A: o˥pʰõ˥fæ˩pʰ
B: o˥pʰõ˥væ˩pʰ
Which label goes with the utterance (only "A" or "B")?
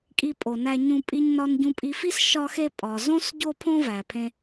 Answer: B